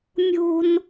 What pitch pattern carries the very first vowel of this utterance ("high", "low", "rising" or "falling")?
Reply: high